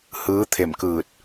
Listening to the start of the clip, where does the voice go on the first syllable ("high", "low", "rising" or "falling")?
rising